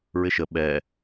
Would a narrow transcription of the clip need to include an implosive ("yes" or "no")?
yes